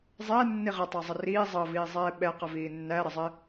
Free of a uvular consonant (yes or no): no